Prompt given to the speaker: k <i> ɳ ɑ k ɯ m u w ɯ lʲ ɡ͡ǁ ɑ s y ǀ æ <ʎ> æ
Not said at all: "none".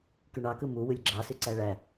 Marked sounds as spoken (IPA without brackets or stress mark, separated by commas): y, ɭ